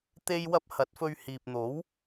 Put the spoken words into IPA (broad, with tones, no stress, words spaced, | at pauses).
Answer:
t̪e˥jwɐ˥p̚ hɐ˨˥t̚fɵ˧ɥ hiː˨p̚n̪o˨˥w